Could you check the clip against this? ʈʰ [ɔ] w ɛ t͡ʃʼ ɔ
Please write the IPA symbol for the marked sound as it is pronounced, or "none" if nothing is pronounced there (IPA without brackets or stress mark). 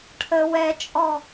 ə